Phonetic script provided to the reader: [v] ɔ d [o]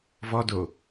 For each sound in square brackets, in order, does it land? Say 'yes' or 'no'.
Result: yes, yes

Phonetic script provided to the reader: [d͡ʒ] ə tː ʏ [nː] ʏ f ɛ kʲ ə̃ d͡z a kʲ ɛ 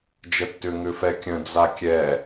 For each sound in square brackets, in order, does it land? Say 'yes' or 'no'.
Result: yes, no

